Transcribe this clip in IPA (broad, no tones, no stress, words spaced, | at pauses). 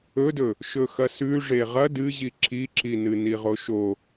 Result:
ɵdɵ | ʃɵxɐsʉ ʐeʁɐ dɨʑi ǁiǁinɨ niʁoʃo